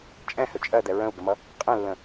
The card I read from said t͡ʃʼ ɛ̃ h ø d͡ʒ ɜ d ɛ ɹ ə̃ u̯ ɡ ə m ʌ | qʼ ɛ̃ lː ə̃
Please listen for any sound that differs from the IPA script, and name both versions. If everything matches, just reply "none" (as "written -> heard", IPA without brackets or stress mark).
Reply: d͡ʒ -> t͡ʃʼ